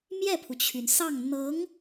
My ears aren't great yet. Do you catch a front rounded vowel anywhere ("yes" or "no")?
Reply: yes